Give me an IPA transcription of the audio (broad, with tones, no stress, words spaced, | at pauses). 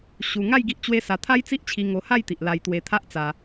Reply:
ɕu˧ ŋa˥˧j ɡi˦ʔt͡ɕwe˦sa˧ t̪ʰa˦jt͡si˦ʔt͡ɕʰi˧ ŋo˧ha˥˧jt̪i˨ʔ la˧jt̪we˧t̪ʰa˦ʔt͡sa˧